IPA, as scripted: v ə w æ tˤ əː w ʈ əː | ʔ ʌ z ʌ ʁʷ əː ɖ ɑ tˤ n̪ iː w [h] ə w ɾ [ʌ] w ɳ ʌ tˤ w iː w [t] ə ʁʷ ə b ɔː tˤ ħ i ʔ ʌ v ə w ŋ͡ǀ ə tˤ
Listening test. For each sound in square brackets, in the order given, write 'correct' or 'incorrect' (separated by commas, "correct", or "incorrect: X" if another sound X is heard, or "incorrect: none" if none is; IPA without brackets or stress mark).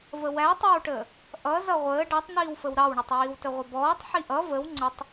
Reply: incorrect: f, incorrect: ɑ, correct